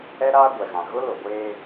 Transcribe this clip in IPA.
ɛ˦ ɾ aː˦ ɡʷ ɛ˨ ɣ ã˨ ɣ ʊ˦ l o˨ ɡʷ eː˦

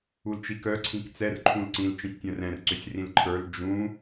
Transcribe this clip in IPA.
u l t͡ʃ i k œ ǀʰ ĩ k t͡s ɛ r ǃʰ ũ l ǀ ĩ l t͡ʃ ĩ sʲ tʲ œ̃ r ɛ̃ r ǀ ʏ sʲ r ĩ l ǃʰ ə˞ l d͡ʒ ũ

